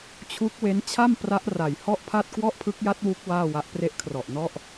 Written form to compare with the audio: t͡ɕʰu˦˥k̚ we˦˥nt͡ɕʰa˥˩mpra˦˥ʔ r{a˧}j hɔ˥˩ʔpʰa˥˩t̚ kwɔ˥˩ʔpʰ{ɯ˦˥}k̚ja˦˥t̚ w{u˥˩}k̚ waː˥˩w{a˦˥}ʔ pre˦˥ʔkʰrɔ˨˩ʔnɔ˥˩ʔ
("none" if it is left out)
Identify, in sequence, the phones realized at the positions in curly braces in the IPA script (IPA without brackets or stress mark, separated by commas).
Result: a˨˩, ɯ˦˥, u˦˥, a˦˥